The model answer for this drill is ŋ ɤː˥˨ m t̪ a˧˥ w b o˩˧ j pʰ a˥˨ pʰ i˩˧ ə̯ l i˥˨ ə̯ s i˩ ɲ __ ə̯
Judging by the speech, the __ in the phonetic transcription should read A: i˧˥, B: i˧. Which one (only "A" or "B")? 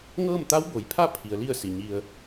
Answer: B